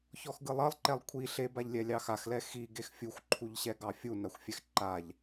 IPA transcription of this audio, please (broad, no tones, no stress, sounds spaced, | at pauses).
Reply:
ç ɔ x ɡ ɯ lˠ ʌ lˠ ǃ ɛ lˠ kʷʰ i ɬ e b a ʎ lʲ ɛ lʲ ɑ x a x l ɛ x i ɡ e x fʲ u xʷ ǃʰ u ʎ ɕ ɛ ɡ ɑ fʲ u n a xʷ fʲ ɛ x ǃ a ʎ